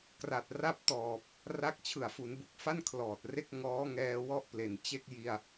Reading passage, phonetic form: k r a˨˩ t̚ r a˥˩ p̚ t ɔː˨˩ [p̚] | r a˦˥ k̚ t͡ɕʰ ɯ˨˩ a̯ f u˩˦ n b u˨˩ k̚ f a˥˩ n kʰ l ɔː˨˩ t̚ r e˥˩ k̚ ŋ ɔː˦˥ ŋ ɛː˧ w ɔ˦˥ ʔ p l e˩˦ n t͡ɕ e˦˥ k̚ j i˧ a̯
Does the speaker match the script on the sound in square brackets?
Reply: yes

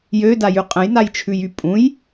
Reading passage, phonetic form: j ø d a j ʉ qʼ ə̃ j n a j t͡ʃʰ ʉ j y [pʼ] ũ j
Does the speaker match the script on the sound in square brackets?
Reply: yes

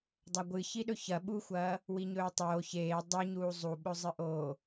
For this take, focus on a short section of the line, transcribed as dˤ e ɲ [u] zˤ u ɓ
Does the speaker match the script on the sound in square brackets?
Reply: no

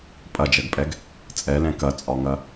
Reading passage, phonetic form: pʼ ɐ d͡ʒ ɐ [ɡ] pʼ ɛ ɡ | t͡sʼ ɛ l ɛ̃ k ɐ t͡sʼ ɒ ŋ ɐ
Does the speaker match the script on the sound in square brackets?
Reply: yes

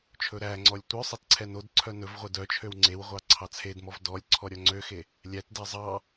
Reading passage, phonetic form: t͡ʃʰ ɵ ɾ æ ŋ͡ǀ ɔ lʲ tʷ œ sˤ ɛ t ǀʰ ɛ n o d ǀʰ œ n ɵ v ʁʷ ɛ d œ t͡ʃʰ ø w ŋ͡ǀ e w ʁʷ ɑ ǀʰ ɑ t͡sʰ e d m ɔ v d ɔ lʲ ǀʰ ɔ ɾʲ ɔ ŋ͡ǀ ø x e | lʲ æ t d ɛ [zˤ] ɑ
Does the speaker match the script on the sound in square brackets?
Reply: yes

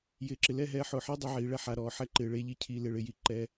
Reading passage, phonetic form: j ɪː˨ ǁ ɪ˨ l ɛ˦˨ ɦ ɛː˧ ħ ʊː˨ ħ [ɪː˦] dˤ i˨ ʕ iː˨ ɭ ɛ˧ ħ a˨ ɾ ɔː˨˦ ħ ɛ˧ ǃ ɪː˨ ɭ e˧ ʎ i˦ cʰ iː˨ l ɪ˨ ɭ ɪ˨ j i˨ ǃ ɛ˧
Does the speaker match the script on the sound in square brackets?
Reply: yes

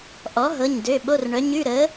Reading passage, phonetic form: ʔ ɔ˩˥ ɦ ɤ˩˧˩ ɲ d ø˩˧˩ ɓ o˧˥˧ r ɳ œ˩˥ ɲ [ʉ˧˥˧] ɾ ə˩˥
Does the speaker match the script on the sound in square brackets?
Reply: yes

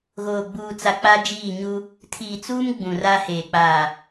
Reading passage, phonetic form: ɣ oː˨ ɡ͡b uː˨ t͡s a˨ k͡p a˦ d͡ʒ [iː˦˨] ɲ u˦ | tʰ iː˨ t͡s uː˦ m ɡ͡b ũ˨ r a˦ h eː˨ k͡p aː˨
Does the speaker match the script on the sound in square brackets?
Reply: yes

